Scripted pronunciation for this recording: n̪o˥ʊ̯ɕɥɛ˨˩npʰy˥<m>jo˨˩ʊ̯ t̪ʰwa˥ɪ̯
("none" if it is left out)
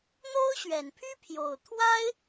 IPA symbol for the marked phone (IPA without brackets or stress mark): pʰ